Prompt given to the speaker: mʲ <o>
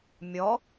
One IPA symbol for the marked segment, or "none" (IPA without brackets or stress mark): ɔ